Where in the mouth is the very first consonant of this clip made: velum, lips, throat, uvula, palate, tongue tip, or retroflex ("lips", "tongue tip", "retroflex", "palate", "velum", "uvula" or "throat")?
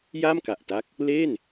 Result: palate